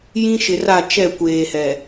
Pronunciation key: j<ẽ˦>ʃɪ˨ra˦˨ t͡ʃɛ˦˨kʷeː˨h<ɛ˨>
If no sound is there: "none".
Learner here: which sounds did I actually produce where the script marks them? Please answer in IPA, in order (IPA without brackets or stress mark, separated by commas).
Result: ĩ˦, ɛ˨